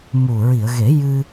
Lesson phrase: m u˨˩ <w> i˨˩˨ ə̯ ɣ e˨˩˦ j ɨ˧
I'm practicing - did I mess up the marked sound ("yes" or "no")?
yes